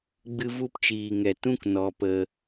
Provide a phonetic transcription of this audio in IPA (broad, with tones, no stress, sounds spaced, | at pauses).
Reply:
ɡ͡b ɨ˧ v u˧ p t͡ʃ iː˨ ŋ ɛ˨ t ũ˦ k n ɔ˧ p ə˧